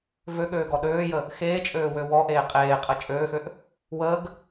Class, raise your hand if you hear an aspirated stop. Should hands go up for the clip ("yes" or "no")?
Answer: no